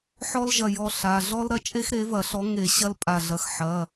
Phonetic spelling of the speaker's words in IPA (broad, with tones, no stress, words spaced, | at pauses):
ħɔ˥lʒɐ˧˩jɔ˧˩ ɬa˩˧˩ ɮɔ˥lɾɐ˥t͡ʃʼe˥xɾe˨˥ vɐ˧˩˧ɬɔ˨˥ŋe˧˩˧ ɕɐ˥lpʼa˧˩ɮɐ˧˩x ħɐ˩˧˩